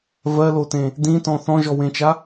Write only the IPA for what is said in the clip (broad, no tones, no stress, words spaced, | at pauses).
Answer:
vɜlotẽ | dĩtɔ̃ θɔ̃ʒɔwẽt͡ʃa